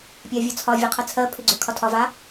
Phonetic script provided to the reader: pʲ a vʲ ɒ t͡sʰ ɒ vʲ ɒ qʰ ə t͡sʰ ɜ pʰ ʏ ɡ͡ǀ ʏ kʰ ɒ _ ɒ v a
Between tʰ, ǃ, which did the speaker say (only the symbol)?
tʰ